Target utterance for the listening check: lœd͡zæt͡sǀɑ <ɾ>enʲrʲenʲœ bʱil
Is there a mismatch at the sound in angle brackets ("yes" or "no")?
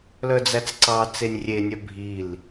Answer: yes